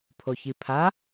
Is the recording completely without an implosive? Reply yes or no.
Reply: yes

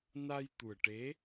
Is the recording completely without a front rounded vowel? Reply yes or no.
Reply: yes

